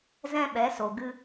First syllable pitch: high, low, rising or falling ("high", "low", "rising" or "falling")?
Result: high